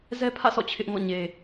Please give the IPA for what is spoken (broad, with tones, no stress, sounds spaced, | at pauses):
z ɛ˦ pʰ ä̰˦˨ s ɔ̰˦˨ t͡ɕʰ ɪ˦ ʔ ŋ ɔ̰˦˨ ɲ e˨